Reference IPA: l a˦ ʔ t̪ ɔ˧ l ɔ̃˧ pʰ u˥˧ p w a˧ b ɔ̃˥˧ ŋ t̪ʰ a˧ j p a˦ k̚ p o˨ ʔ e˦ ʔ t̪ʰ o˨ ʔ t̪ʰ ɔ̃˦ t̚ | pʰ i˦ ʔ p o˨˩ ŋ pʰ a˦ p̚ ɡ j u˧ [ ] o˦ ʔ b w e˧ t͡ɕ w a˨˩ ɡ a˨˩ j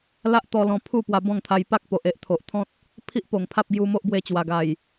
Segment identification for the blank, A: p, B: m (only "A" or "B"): B